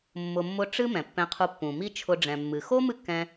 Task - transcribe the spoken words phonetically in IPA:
mː ʊ˨ mː ʊ˧ ʈ͡ʂ ɨ˦ m ɛ̃˨ pː ɛ̃˧ qʰ u˧ pː ũ˨ m i˦ t͡ʃʰ ʊ˧ ɖ͡ʐ ɛ̃˨ mː ɨ˨ x o˦ m ɨ˦ kː ɛ̃˧

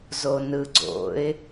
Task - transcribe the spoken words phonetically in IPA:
z o n ɯ ɡ͡ǀ o̰ ɪ̯

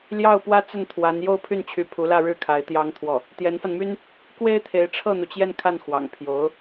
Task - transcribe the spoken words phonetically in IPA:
l j ɑ˥˩ ʊ̯ p w ä˥ t͡s ə˥˩ n t̪ʰ w a˧˥ n j o˥˧ ʊ̯ pʰ y˥˩ n t͡ɕʰ y˧˥ pʰ u˧˥ l ä˥˧ ɻ ɻ̩˥˩ kʰ a˧˥ ɪ̯ t̪ j ɑ˥ ŋ t̪ʰ w ɔ˥˩ | t̪ j ɛ˧˥ n f a˧ n m y˥ n | k w e˥ ɪ̯ t̪ʰ e˧˥ ɪ̯ ʈ͡ʂʰ ɤ˥˩ n̪ u˩ t͡ɕ j ɛ˥˧ n kʰ a˥˩ n x w ɑ̰˨˩ ŋ pʰ j o˧˥ ʊ̯

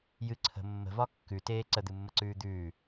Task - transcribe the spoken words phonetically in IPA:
j ɨ ǀʰ ə̤ mː ə̤ v ɒ kː ʉ t eː ǀ ə d̪ ɨ mː ə ǀ ʉː d̪ ʉː

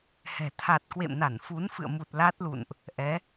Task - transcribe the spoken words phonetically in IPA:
h ɛ̤˨˩ t̪ʰ a˨˩ t̚ k w ḛ˧˨ m n a˧˩ n f u˨˦ n f ɨ̰˧˨ ə̯ m u˨˩ t̚ l a˦˥ t̚ l ṵ˧˨ n ʔ | ʔ ɛ˨˦

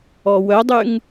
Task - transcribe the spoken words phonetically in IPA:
ɔ w œ dˤ y ŋ

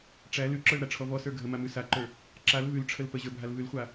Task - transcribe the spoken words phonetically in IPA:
ʈ͡ʂ æ l ʉ ǁ ə˞ l ɾ a ʈ͡ʂʰ ɔ v ɔ s ə˞ ɡʱ ə m a m ʉ s a ǃ ə˞ | ǁ a l v ʉ l ʈ͡ʂʰ ə l p ə ʑ ə˞ bʱ a l v ʉ l χʷ a

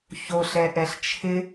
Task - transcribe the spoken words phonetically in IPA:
ç o ɬ ɛ ʔ ɛ ɬ t͡ʃʰ ɪ

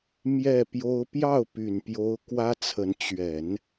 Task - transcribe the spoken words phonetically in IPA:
m j ɛ˥˩ p j o˥ ʊ̯ p j ɑ˥˩ ʊ̯ p y˨˩ n p j o˧˥ ʊ̯ k w ä˥ t͡sʰ ə˧˥ n t͡ɕ ɥ ɛ˨˩˦ n

